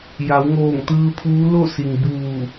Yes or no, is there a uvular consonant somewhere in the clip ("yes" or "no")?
no